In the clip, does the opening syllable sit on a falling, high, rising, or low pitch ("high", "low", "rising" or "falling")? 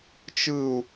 low